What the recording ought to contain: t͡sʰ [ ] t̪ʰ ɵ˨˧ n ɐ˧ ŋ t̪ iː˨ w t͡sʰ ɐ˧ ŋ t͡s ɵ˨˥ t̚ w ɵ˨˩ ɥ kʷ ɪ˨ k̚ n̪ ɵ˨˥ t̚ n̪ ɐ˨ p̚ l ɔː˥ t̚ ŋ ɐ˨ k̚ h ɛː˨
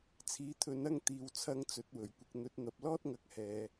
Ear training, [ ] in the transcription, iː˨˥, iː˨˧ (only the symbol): iː˨˥